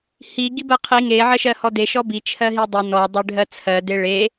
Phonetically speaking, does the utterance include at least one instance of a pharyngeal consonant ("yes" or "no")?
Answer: yes